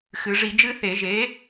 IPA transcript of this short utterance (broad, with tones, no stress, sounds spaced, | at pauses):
x ɨ˩˧ ʐ i˧˩˧ d͡ʒ ɨ˦ θ e˧˩˧ ʒ e˨˥